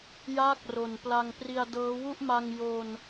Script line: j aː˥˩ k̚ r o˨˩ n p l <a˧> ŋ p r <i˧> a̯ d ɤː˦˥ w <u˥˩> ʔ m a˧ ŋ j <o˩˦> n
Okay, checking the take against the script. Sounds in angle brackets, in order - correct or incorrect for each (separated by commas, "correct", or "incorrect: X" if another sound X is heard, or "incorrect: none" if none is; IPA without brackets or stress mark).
correct, correct, correct, incorrect: o˧